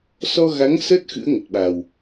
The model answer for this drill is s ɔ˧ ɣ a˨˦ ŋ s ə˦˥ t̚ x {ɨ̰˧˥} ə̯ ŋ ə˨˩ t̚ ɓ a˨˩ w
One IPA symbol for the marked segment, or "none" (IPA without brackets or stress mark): ɨ̰˧˥